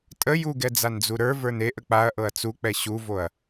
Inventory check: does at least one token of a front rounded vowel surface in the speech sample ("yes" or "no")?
no